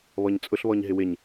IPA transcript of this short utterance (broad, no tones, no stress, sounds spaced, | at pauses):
β ɔ ɲ t͡sʼ ʊ ɬ β ɔ ɲ ɦ ɪ w ɪ ɲ